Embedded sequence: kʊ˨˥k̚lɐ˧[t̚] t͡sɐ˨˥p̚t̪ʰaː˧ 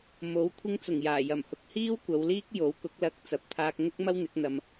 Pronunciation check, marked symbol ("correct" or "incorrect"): incorrect